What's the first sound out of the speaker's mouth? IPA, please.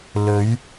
l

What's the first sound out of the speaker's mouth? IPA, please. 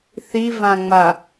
θ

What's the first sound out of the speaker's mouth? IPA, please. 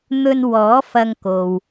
n̪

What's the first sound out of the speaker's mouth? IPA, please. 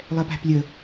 lˠ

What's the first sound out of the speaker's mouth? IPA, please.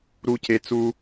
ɾ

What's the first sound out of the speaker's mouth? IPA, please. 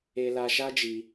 e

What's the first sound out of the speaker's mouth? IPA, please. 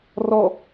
r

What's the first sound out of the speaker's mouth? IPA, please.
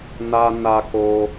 n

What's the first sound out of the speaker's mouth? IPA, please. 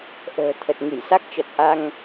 ʔ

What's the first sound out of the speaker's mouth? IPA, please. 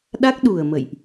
ɗ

